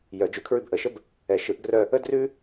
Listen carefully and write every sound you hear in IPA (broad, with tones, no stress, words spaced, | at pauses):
jœ˨˩˦d͡ʒʉ˨˩˦ kʰɹʉ˦˨bʔə˨˩˦ʃə˥b | ɛ˨˩˦ʃɯ˨˩˦ʔɡrœ˦˨ | ə˥drʉ˥